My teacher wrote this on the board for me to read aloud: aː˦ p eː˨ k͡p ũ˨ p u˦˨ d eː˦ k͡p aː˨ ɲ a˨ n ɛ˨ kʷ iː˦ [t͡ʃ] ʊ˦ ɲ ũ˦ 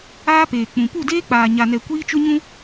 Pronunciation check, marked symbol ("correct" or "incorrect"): correct